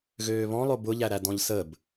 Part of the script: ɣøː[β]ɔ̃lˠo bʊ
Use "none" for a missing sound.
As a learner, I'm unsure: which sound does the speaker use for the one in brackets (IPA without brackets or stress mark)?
β